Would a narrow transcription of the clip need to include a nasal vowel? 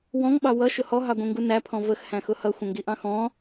yes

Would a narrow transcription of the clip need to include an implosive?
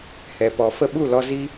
yes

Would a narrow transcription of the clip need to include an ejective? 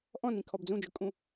yes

